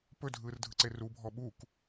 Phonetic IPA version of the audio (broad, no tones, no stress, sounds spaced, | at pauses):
p ɵ dʱ ɯː r dʱ ɯ ǀ e r u bʱ ɔ ɓ u k